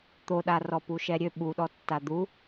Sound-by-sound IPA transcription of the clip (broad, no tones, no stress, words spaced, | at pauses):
t̪oɗarɔ puʃɛɾʲø ɓuɗɔtːa d̪u